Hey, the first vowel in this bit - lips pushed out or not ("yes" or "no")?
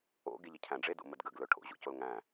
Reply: yes